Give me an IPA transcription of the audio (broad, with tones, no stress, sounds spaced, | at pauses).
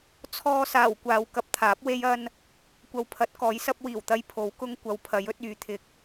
t͡sʰ ɔː˧ s aː˨˩ w kʷ aː˨ w k ɐ˥ p̚ t̪ʰ aː˨˥ p̚ w e˥ j ɐ˥ n | kʷ ɐ˨ w pʰ ɐ˨˥ t̚ k ɔː˨˥ j s ɐ˥ p̚ w iː˨˩ w t̪ ɐ˧ j pʰ o˨˥ w k ʊ˥ ŋ kʷ ɐ˨˧ w pʰ ɐ˨˥ j ɵ˨˥ t̚ yː˨˥ t̪ʰ ɪ˧ k̚